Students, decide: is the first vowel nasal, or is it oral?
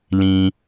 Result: nasal